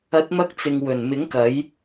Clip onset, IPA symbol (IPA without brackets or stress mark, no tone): ɐ